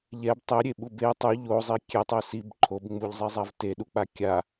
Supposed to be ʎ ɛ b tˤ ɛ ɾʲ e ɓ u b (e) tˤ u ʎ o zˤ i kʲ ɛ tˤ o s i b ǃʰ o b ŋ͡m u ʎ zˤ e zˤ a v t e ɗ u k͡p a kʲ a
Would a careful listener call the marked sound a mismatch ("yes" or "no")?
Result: no